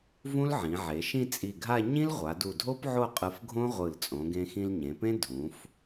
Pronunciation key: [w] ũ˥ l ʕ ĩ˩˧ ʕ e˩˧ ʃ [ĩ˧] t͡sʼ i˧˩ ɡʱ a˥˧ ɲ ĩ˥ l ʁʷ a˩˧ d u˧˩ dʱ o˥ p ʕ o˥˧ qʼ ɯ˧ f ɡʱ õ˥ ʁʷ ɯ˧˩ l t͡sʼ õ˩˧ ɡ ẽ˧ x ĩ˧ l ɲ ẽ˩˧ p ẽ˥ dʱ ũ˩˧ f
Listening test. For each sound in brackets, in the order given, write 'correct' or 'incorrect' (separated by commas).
incorrect, incorrect